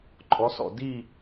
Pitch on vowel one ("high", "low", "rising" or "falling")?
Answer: rising